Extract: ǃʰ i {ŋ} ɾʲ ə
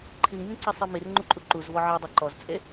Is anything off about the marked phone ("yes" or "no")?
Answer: no